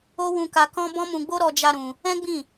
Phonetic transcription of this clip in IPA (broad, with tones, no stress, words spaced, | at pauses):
o˦wũ˧ka˧kɔ̃˦ bɔ̃˦mũ˧ɡ͡bo˦ ɾɔ˧d͡ʒa˧ ɾũ˧ | ɛ̃˦ɡ͡bĩ˦˨